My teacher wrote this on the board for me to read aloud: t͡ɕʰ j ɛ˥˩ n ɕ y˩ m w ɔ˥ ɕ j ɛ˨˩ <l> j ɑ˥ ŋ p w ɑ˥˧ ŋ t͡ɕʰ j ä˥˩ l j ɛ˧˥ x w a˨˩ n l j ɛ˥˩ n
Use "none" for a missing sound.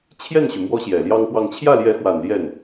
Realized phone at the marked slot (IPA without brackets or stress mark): l